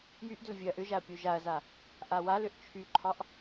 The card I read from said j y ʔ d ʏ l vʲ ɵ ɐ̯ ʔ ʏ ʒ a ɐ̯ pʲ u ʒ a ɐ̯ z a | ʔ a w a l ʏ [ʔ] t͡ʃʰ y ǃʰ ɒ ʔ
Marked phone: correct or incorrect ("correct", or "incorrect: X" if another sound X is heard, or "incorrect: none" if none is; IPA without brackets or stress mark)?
correct